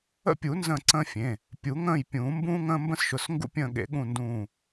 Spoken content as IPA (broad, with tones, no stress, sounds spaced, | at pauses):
ə̰˦˨ pʲ u˨˩˦ n z ə̃ː˦˨ ǀ ə̃ː˦ fʲ ẽ˩˧˩ | pʲ u˨˩˦ ŋ ə̃ː˦˨ j pʲ ũː˨˩˦ m b ũː˦ ŋ ə̃ː˦ m b ə̃˦ s ʃ ʊ˩˧˩ s ŋ ɡ ṵ˦˨ pʲ ə̃ː˦˨ ɠ ḛ˨˩˦ ɠ ũ˦˨ n d ũː˦˨